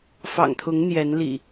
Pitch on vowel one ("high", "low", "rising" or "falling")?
low